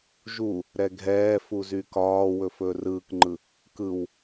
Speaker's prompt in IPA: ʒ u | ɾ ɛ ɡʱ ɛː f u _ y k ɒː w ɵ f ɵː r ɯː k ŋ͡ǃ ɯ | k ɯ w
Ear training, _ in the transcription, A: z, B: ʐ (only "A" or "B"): A